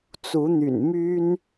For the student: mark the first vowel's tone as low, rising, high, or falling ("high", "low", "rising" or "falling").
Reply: rising